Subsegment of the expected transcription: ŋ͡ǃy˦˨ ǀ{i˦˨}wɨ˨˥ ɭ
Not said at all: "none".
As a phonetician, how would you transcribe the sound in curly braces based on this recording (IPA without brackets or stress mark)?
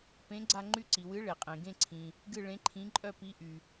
i˩